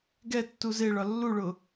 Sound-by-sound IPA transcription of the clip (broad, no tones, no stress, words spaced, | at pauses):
ɡɛ tːuzeɭɒ lːuɭʊ